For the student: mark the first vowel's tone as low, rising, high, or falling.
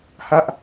high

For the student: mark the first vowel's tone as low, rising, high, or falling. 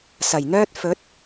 low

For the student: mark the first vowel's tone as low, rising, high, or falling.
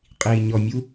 low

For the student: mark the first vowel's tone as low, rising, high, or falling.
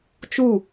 falling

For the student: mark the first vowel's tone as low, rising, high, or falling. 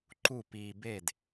falling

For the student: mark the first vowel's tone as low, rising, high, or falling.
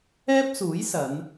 high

